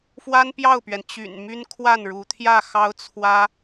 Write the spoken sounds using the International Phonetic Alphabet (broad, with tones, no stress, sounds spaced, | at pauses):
f w a˥ n p j ɑ˥˩ ʊ̯ p ɥ ɛ˩ n t͡ɕ y̰˨˩ n m y˥ n kʰ w a˥˩ n ɻ u˧˥ t̪ʰ j ä˥˩ x ɑ˥ ʊ̯ t͡sʰ w ä˥